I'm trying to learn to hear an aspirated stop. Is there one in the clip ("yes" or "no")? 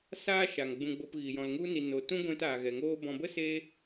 no